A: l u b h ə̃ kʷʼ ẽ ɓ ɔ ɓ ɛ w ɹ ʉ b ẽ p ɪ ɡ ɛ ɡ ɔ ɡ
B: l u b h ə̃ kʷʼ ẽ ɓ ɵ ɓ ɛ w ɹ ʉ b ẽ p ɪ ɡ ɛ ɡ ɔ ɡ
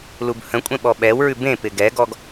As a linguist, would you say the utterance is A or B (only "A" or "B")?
A